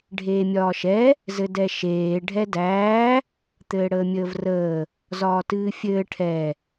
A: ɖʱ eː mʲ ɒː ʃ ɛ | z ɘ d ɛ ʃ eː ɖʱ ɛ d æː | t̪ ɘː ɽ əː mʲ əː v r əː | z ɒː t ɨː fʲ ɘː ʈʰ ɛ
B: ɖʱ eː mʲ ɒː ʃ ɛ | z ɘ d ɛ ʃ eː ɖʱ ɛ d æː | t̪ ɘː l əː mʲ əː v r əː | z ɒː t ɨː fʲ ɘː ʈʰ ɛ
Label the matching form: A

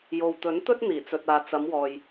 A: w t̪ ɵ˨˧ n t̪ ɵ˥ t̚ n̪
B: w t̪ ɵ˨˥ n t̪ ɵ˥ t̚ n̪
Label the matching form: B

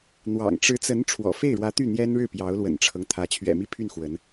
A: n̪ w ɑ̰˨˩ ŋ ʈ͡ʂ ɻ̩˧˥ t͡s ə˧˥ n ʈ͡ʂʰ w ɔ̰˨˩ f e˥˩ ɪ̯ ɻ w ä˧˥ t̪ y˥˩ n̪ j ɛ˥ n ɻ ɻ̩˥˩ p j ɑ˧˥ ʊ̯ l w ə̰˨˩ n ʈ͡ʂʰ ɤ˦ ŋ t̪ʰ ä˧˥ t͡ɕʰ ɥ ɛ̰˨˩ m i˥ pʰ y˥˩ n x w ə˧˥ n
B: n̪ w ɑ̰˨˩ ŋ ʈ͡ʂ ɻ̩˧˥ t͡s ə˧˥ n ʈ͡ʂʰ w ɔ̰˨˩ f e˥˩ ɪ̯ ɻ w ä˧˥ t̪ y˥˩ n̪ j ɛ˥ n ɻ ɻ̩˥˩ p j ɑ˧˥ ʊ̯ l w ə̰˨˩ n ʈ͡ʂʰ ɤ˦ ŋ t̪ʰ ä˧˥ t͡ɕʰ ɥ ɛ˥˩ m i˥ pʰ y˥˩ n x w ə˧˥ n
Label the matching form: A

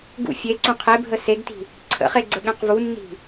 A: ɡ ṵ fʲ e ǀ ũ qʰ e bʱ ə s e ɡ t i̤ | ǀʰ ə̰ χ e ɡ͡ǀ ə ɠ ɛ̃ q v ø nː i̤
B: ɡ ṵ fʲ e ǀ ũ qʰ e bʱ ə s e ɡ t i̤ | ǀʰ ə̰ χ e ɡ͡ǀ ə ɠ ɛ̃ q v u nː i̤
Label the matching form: B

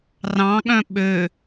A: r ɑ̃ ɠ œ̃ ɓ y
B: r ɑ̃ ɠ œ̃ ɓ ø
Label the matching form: B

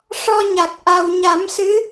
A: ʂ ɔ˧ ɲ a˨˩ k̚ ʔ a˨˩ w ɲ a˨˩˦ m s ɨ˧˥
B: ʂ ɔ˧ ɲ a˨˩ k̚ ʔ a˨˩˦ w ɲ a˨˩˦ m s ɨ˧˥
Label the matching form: A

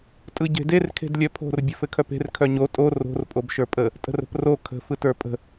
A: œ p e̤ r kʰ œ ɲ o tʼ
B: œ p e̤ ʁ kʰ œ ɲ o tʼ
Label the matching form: A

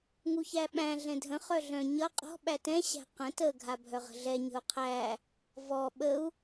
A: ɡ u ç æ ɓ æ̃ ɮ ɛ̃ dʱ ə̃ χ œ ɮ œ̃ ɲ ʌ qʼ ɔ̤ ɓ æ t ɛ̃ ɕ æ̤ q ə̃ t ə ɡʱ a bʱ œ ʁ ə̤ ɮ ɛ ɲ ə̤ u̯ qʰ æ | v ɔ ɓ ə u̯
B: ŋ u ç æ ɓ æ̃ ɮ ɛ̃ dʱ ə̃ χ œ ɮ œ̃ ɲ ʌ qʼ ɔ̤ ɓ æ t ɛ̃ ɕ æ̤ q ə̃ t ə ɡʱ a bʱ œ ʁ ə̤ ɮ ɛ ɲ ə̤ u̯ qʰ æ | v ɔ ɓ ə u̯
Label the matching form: B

